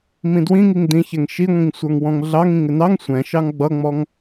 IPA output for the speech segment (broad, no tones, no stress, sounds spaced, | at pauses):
m ĩ d w ĩ ŋ i ŋ d ĩ ç ɛ ŋ ʃ i ŋʷ ĩ ŋ sʷ ə˞ ŋ w ɔ̃ ŋ ɮ ɑ ŋ ĩ ŋ ɪ n ɑ ŋ sʷ ɛ̃ ʃ ɑ ŋ ɡ͡b ʌ ŋ͡m ɔ ŋ